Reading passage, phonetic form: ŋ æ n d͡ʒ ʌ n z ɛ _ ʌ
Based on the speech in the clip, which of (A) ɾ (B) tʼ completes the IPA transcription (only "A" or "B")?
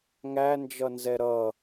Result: A